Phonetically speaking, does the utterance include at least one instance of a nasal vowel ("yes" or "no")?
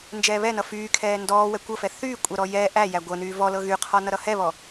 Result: no